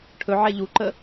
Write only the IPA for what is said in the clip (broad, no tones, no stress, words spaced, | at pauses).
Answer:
ʈʰɵʕɛ ʎuǃə